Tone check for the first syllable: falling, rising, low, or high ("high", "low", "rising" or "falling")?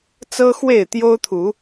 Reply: high